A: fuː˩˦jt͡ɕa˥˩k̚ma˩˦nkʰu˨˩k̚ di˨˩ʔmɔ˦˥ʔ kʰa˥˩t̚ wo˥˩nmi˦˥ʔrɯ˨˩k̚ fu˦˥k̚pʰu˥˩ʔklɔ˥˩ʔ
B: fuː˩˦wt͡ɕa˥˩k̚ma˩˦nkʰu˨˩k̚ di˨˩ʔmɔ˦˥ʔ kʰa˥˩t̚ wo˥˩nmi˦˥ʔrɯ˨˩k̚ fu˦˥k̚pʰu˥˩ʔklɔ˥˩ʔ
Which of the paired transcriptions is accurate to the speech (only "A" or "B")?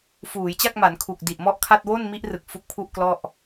A